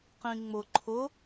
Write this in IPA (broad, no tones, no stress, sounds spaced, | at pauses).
q ĩ ŋ͡m ʊ ǃʰ ʊ